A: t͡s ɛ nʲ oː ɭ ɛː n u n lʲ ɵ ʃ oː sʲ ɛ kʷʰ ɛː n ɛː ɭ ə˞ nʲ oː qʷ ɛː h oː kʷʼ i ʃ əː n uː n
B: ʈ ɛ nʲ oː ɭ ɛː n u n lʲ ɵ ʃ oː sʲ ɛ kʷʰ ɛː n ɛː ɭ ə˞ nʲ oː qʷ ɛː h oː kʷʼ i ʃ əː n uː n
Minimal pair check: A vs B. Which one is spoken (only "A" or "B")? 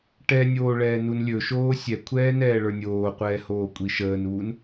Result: B